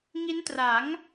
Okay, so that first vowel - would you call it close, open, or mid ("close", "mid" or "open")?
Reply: close